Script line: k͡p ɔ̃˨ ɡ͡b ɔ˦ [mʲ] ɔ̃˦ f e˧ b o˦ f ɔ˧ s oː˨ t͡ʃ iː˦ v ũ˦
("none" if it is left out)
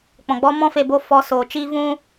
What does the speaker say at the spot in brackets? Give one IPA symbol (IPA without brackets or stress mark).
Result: m